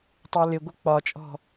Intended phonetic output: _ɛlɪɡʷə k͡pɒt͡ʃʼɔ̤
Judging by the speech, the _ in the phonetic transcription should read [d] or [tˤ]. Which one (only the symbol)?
tˤ